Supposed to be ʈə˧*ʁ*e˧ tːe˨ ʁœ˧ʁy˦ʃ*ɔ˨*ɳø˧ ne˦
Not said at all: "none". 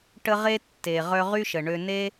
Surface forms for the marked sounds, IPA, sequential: ʁ, ə˨

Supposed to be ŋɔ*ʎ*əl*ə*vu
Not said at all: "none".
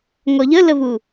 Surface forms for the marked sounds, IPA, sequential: ʎ, ə

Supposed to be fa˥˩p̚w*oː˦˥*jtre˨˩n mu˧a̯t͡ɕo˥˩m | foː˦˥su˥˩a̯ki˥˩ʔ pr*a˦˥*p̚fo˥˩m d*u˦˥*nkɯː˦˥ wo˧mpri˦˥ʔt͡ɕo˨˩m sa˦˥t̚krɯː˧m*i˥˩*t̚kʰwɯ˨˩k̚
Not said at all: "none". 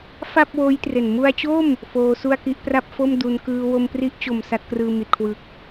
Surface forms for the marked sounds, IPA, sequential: oː˦˥, a˥˩, u˦˥, i˨˩

